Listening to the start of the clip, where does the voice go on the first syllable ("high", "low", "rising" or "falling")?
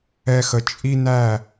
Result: high